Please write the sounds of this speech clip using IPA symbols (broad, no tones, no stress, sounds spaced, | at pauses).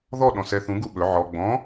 ð ɔ ɗ ɔ̃ s ɛ θ ũ ɡ u ɓ ɵ ʕ ɔ ɡ͡b ɔ̃